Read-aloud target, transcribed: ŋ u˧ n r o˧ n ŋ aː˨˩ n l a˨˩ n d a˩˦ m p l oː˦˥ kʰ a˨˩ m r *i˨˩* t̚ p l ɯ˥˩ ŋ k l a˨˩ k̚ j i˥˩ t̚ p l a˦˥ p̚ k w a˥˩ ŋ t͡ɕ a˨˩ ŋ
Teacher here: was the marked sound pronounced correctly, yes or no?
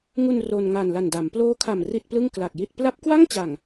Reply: no